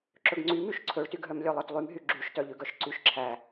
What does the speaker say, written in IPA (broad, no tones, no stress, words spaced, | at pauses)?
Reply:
ǁɵɡŋ͡ǀy myʃǀʰɵɭtyɡɦœm lʲœlˠœtlˠymɦy ɡ͡ǁyʃtœʎʉɡœʃ ǀyʃǁʰæ